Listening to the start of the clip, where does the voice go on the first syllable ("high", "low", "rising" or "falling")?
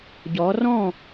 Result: rising